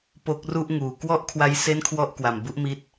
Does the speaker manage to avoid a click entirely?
yes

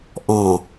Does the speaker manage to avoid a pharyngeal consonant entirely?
yes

